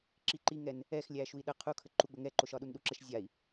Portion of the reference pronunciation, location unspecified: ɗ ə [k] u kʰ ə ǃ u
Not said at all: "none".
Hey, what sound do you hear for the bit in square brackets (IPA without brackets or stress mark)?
qʰ